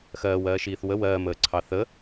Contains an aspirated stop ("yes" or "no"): yes